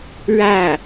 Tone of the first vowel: falling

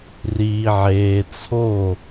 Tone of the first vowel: low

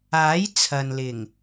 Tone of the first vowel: rising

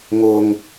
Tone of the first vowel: low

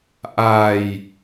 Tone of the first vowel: low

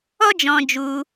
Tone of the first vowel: high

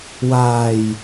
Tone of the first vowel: low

